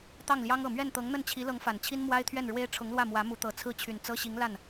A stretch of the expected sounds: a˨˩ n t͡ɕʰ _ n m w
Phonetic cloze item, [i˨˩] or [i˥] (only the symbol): i˥